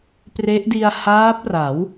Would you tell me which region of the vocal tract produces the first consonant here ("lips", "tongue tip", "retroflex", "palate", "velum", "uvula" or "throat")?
lips